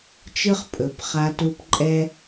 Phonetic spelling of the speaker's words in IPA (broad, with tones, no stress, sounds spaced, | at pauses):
t͡ʃ ɯ˦ χ pʼ ɵ˨˦ p χ a˧ t u˧ p ǃʼ ɛ˦